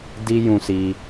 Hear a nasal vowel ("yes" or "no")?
yes